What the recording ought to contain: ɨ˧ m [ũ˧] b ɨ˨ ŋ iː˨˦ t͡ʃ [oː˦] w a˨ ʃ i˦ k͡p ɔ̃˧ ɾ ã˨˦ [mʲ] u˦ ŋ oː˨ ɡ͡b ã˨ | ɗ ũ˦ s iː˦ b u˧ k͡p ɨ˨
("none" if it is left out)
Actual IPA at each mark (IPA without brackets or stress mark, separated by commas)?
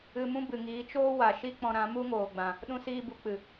ũ˦, oː˦, m